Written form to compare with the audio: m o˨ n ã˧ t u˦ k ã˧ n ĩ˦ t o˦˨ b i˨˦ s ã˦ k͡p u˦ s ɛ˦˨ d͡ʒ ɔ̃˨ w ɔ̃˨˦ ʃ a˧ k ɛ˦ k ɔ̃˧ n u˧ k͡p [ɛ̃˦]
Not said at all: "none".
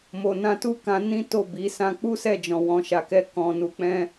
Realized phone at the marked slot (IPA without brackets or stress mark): ɛ̃˦